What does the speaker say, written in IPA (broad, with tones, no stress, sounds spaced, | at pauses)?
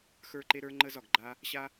x ə˞˥ ǃ e˥ ɾ ə˞˥ ŋ͡ǃ ə˥ z ɒ˩ ɡ ɡ͡ǃ a˥ | ɕ a˥